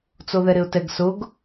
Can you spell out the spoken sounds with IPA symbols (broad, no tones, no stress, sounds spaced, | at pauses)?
t͡s o ð ɛ ɾ ɪ ʊ̯ t ɛ ɡ s ʊ ɡ